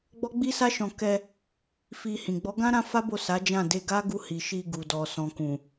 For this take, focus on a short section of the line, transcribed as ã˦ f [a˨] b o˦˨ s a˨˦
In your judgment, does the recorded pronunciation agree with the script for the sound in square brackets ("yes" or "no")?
no